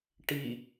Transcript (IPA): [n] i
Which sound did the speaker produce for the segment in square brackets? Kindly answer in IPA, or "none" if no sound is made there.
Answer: ʈ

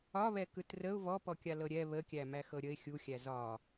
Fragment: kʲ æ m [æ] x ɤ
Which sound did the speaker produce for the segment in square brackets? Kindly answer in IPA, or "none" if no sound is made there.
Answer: æ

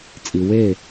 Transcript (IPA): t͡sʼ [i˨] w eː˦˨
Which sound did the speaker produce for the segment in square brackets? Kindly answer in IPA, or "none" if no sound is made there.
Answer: i˨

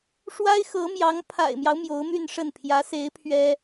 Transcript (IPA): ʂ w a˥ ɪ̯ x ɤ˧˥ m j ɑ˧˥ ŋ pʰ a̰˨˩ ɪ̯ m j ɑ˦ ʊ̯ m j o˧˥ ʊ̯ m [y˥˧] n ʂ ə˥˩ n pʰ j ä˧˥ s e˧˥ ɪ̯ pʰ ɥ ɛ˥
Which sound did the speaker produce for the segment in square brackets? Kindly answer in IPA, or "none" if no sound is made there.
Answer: y˥˧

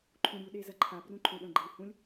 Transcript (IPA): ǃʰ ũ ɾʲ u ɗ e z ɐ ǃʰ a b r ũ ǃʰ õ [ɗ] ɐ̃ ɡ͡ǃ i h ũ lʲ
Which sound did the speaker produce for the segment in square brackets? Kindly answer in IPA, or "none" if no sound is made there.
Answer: ɗ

